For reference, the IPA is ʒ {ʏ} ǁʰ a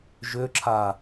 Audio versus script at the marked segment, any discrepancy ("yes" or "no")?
no